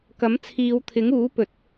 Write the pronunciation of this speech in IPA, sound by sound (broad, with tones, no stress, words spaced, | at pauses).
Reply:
kɐ˨˥mt͡sʰiː˨˧wt̪ʰɪ˨˥ŋuː˨˥ pɵ˨˥t̚